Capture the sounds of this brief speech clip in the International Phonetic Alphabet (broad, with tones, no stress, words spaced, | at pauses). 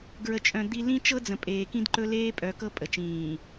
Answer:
ɡɹə˨t͡ʃʼœ̃˨ d̪i˦ lĩ˦ t͡ʃɤ˦d͡zə̃˨ pʼeː˨kĩ˦d ǃɵ˦leː˦pʼœ˨˦ kɤ˦pʼə˨ t͡ʃĩː˨